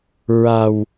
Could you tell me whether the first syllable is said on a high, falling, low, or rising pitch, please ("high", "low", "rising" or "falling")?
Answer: low